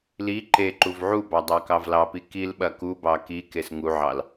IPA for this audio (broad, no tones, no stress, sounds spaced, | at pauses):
l i ǃ e ǃ u v ʕ u b ɑ dˤ ɑ k ɑ v l ɑ p i k i l ɓ ɐ k u b ɑ k i k e s ŋ u ʕ ɑ l